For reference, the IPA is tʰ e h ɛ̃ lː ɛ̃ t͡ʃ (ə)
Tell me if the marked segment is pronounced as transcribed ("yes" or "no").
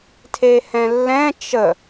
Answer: yes